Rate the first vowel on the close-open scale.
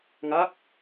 open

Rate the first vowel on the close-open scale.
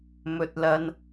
mid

